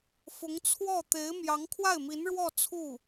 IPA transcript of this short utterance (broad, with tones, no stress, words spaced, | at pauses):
fʊ˧˥ŋt͡sʰwɔ˥˩ t̪e˧˥ɪ̯ mjɑ˧˥ŋkʰwa˥˩ɪ̯mi˧˥nɻwɔ˥˧ t͡sʰu˥˩